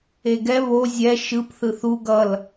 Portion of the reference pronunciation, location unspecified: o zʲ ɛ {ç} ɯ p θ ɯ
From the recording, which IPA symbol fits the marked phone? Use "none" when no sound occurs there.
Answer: ʃ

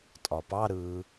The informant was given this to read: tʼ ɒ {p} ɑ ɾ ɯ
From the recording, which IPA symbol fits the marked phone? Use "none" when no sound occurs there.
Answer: p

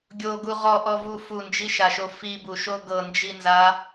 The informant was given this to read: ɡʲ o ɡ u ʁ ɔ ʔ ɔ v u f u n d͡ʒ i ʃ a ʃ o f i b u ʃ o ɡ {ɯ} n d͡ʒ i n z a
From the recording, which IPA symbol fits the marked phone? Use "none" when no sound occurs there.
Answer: ɤ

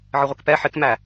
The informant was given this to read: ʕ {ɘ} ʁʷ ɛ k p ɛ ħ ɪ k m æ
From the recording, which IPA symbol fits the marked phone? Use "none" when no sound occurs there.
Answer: ɘ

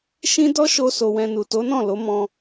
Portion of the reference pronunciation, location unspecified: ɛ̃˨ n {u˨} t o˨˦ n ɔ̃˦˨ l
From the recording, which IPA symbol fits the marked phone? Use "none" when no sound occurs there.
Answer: u˨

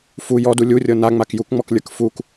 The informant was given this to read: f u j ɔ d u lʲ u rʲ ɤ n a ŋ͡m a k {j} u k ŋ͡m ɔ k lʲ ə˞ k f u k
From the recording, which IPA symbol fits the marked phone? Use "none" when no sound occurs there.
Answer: j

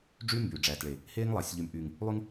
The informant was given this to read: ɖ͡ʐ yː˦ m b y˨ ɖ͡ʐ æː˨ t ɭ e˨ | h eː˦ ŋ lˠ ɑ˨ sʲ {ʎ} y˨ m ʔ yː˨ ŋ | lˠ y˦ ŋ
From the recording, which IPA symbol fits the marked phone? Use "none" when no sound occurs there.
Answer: ʎ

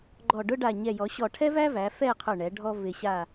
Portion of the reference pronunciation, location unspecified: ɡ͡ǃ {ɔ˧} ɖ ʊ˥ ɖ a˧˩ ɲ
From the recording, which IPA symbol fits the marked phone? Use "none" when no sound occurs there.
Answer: ɔ˧˩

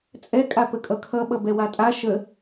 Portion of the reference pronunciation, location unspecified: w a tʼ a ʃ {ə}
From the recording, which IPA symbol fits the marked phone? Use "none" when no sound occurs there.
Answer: ə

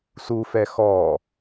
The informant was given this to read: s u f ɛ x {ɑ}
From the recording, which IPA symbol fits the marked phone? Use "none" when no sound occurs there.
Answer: ɔ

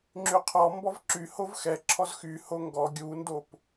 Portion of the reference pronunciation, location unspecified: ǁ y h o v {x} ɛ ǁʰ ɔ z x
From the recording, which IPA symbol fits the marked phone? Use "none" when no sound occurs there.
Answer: x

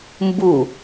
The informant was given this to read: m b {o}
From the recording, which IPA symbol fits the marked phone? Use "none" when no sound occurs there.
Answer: u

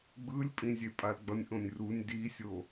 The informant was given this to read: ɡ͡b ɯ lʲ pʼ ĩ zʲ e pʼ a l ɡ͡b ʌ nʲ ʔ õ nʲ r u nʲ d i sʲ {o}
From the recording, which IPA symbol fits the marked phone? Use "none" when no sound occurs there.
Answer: o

